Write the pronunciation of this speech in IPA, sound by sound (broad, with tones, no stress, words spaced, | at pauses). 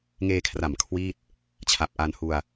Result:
ŋeː˧kʰra˨˩m kʰwiː˥˩t̚ | t͡ɕʰa˨˩p̚ ʔa˧n hu˧a̯